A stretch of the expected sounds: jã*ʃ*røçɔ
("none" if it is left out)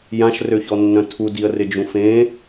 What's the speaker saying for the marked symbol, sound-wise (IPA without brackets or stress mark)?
ʃ